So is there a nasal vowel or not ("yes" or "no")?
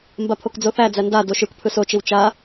no